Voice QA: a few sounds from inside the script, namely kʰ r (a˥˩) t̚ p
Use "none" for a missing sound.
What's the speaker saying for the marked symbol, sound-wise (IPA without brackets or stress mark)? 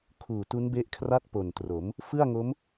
a˥˩